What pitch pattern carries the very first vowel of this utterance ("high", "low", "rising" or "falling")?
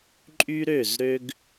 high